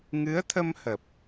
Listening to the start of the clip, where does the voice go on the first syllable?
rising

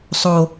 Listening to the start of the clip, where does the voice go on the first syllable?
low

